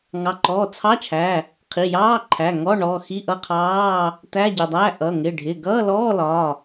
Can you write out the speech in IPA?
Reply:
ŋɑ˩˧˩ǃɔː˩˧˩t͡sʰɑ˧˥˧t͡ʃʰæ˩˧˩ | qʰi˩˧˩jɑː˧˥˧ǃʰæ˩˧˩ ŋɔ˧˥˧ ɳɔː˩˧˩ xi˧˥˧ʔʌ˧˥˧qʰɑː˧˥˧ | tæ˧˥˧ɟɪ˩˧˩dˤæ˧˥˧ ʔʌ˩˧˩ ŋɪ˩˧˩ɖʱɪ˩˧˩ɡʌː˧˥˧lɔː˧˥˧ lɒ˩˧˩

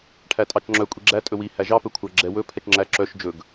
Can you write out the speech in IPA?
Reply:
ʈʰætʼɑt͡ʃŋ͡ǁœ kʷʼiɡ͡ǁæ tʼɵwi hæʒɑ pɵkʷʰæɡ͡ǁɛ wɵ pʰɛt͡ʃŋ͡ǁæ ǁœʃ d͡ʒɵɡ

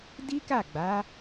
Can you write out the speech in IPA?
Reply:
di˦ka˦˨ɡ͡ba˨˦

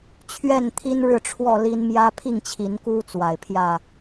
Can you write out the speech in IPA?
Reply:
t͡ɕʰɥɛ˥˨nt̪ʰi˦nɻɻ̩˥˨ ʈ͡ʂʰwɔ˥˨li˦n mjä˦pʰi˥˨ŋt͡ɕʰi˨˦nku˦ t͡swa˨˩ɪ̯pʰjä˥˨

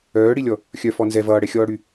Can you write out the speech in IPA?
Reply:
œːɽilʲɔ | xʲœ fɔnzɛ vʌːɽɛxʲɔːɽy

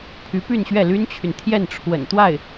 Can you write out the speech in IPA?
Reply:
pʰy˧˥py˥˧nɕɥɛ˥˩ ly˥nt͡ɕʰy˨nt̪ʰjɛ˥˩n ʈ͡ʂʰwə̰˨˩n t̪wa˥˩ɪ̯

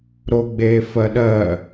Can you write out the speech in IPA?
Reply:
ɾoɡ͡be fɜɗɜ

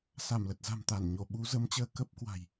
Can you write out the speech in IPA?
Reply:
sa˧˩mlə˨˩t̚za̤˨˩mt̪a˧˩n ɲo˧˩ɓu˨˦zə˨˦m t͡ɕəː˧kə˦˥p̚ kwa̤˨˩j

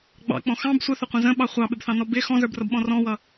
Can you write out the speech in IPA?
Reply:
ɡ͡bɑ̰k͡pɔ̃ xɑ̃b sʷəθʊqʷə̃ zə̃ɓɑ χʷɑɓɪbθɑ̃nɔ bɪ xɔ̃zə˞brʌbɓɔ̃ rɔ̃wʌ

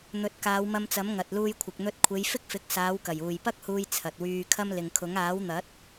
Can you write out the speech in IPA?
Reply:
n̪ɵ˨˥t̚kaː˨˧wmɐ˧mt͡sɐ˨˥m ŋɐ˨t̚luː˧jkʷʰɪ˨k̚ n̪ɵ˧t̚kʷʰe˨˧j fɪ˥k̚fɪ˨˥k̚saː˨˧wkɐ˨˩j uː˨˩jpɐ˥k̚huː˧j t͡sʰɐ˨t̚wyː˧kʰɐ˥m lɪ˨ŋkʰʊ˨˥ŋ aː˨˥wn̪ɐ˨˥t̚

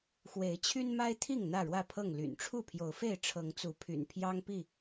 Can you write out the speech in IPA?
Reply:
xwe˨˦ɪ̯ t͡ɕʰy˦nma˦ɪ̯t̪ʰi˥˨ŋ n̪ä˥˨ɻwä˥˨pʰɤ˥˨ŋ ly̰˨˩nʈ͡ʂʰu˥˨pʰjo˨˦ʊ̯fe˥˨ɪ̯ ʈ͡ʂʰɤ˨˦ŋt͡su˨˦pʰy̰˨˩n pʰjɑ˦ŋpi˥˨

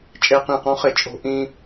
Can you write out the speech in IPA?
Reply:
t͡ʃʼe˧qĩ˧˩qɔ̃˧˥χɪ˧˩ t͡ʃʼo̤˧ ʔĩ˧

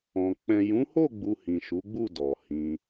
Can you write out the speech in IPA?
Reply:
ɔ̃˨ k͡pɛ̃˨jũ˨˦ho˦˨ɡ͡bu˨ hĩ˨ʃu˨˦ɡ͡bu˦˨ dɔ˨hĩ˧

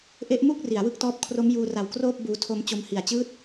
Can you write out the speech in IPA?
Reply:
ʔe˦˥ʔmu˥˩k̚ ri˩˦a̯wɯ˦˥k̚tɔː˦˥p̚ kʰro˦˥mjuː˧ra˨˩w kroː˥˩p̚ buː˧tʰo˦˥m t͡ɕo˦˥mhi˨˩a̯t͡ɕɯː˥˩t̚

